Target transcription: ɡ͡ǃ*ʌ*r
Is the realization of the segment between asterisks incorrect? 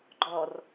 yes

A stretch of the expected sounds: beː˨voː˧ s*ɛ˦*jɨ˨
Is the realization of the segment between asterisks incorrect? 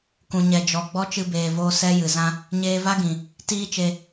no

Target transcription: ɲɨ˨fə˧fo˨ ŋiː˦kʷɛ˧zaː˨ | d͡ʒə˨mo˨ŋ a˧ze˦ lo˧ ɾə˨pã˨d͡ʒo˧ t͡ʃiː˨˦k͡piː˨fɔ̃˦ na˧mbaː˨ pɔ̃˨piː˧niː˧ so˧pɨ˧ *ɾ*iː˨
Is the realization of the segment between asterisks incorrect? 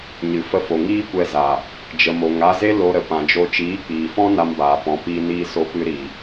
no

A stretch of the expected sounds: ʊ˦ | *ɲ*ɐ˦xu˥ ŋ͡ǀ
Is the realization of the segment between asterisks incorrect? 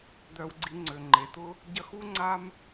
yes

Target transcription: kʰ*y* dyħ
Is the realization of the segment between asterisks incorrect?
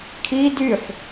yes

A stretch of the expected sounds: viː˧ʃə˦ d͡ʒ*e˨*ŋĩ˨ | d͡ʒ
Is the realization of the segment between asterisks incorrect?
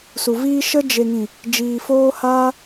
no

